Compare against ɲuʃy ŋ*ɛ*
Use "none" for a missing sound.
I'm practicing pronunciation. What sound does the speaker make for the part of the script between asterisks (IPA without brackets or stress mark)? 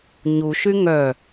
œ